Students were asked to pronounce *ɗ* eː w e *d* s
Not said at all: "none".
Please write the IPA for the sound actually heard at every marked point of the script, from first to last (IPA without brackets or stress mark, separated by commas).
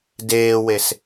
d, none